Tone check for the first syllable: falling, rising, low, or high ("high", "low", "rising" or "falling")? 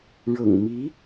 low